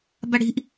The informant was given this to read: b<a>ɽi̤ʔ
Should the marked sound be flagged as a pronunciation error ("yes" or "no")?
no